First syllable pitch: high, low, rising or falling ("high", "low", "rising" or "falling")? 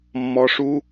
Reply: rising